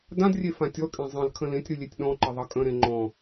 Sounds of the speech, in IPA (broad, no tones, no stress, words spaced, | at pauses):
dãdrʲe fãtʲɔkʼẽ zˤə̃l kʰə̃lẽtʲɾɨ lʲetʲɗɔ̃ǃə ðˤʌkʼə̃ɾẽ ŋ͡ǃɔ̃